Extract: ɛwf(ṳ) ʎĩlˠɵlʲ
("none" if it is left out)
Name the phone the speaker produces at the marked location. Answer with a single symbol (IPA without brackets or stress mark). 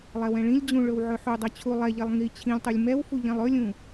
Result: u